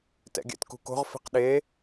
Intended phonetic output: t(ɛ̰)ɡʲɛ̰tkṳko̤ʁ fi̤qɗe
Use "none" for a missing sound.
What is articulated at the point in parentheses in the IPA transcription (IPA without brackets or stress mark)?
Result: ɛ̰